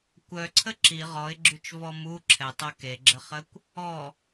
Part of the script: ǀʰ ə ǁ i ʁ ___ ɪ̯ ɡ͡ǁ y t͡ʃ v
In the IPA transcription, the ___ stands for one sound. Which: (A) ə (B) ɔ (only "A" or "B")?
B